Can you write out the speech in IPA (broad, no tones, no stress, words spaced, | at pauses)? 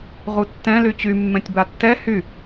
ʁutːɛ̃ lyt͡ɕy mːɛ̃tʲbatːɛ hy